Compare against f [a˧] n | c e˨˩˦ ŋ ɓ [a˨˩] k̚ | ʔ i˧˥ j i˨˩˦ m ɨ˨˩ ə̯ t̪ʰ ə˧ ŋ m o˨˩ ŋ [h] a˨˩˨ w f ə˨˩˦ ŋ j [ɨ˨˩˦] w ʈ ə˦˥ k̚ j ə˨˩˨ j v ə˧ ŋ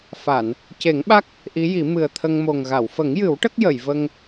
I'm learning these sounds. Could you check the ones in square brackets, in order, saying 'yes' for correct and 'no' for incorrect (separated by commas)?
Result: no, no, no, yes